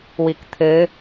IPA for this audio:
wikt̪ʰɘ

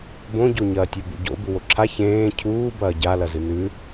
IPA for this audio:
bõɟoɲɐːtʲɵ bṵɟo̰ buwoǁʰa çẽː cʰuːbɐː ɟalɐzɨ nʉ

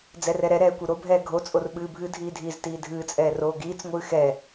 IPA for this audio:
d͡zɛrɛɾɛɾɛː kʷɨɾobʱɛː ɡʱot͡sʼor ɓɨːbʱɨdʱiː dʱiːztiːdʱɨːt͡sʼɛː roːɡiːt͡sŋʷɨː xɛ

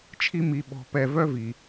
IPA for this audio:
t͡ʃʰi˦mi˨ ɓɔ̤˨pɛ˨vœ˦ vi˨

